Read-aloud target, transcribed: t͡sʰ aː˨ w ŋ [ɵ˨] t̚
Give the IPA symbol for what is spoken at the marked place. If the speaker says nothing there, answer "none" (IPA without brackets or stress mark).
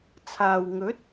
ɵ˨˥